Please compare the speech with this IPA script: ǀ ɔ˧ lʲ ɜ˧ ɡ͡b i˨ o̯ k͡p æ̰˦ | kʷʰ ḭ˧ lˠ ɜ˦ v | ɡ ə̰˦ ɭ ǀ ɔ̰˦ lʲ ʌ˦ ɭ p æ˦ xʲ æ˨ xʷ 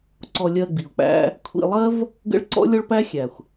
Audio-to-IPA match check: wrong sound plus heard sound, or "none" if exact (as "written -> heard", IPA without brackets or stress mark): ʌ˦ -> ɔ˦